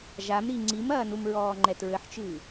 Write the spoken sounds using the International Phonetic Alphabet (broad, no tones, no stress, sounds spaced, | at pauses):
ʒ a m ɾ i ŋ͡ǀ i m ɐː n u m ɹ ɔː ŋ͡ǃ ɛ t ɹ ɘ ħ t͡ʃ ɨː